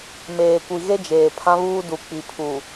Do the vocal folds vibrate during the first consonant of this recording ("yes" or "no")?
yes